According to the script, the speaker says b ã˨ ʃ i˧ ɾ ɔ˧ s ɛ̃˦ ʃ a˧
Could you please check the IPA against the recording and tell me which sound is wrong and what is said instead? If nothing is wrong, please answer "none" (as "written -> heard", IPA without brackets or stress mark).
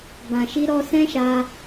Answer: none